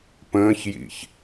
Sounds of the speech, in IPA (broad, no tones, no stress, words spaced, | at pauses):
pə̃ːçjḭç